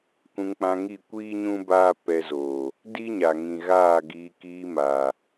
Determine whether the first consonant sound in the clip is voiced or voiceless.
voiceless